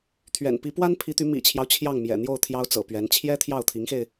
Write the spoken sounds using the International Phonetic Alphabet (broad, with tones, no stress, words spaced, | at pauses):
t̪ʰɥɛ̰˨˩n pi˧˥pwa˥npʰi˧˥t̪y˧˥ mḭ˨˩t͡ɕʰjɑ˦ʊ̯ t͡ɕʰjɑ˥˩ŋmjɛ̰˨˩ n̪jo˥˩ʊ̯ t̪ʰjɑ˥ʊ̯t͡sɤ̰˨˩pɥɛ˧˥n t͡ɕʰjɛ˥t̪ʰjɑ˥˩ʊ̯t̪ʰi˧˥ŋxe˧ɪ̯